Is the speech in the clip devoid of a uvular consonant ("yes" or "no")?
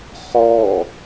no